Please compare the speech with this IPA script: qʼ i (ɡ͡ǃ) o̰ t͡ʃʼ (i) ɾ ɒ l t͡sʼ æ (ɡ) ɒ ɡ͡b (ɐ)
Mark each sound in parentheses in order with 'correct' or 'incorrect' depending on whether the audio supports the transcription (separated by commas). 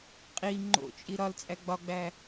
incorrect, correct, incorrect, incorrect